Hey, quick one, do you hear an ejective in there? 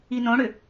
no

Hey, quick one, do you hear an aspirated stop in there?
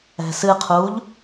yes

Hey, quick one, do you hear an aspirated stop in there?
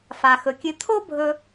yes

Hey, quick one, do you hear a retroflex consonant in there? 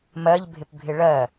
yes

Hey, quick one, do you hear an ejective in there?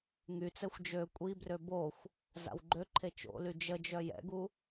yes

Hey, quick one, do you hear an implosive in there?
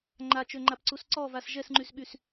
yes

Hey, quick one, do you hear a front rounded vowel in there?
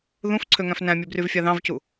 yes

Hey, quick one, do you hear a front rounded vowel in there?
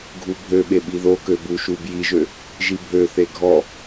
yes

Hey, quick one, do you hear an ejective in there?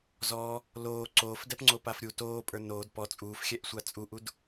yes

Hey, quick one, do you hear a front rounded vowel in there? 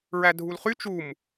yes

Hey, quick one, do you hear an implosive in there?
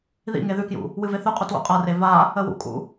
no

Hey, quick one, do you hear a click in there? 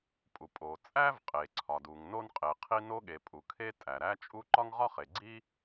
yes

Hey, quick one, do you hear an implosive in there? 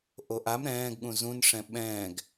yes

